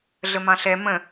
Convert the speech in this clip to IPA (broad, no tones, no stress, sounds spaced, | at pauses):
ɮ ə m ɑ̃ ɬ ɛ m ə̃